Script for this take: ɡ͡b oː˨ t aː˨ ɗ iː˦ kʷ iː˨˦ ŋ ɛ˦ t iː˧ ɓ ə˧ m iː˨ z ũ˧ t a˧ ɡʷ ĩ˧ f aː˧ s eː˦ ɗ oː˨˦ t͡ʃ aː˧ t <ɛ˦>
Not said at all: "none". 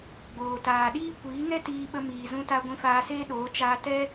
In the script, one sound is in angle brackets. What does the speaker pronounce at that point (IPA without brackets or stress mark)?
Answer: ɛ˦